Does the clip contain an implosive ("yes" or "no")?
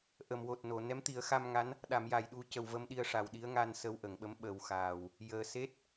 yes